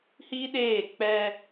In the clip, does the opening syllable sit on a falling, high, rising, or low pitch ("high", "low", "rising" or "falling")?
high